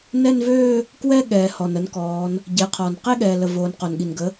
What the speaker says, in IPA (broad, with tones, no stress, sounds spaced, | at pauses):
n ɛ˥˧ n v øː˥˧ | k w ɛ˥˧ ɠ ɛː˩ h ɔ˩ n ə˩˥ n k ɔː˩˧ n | ɟ e˩˧ qʰ ɔ˩ n q e˥˧ ɠ ɛː˩ l ə˩ v oː˩˧ n q o˩ n ɠ i˩ n ɡ ə˩˥